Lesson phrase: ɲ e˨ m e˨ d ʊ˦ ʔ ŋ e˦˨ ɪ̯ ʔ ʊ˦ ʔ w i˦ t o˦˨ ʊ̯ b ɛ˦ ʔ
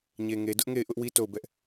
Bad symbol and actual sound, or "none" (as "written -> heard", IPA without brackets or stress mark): m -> ŋ